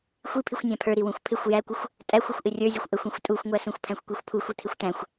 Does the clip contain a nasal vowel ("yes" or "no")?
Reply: yes